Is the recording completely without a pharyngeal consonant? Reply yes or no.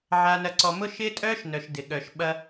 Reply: no